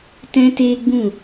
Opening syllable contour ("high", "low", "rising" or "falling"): high